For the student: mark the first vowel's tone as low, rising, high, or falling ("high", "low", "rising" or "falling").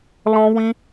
high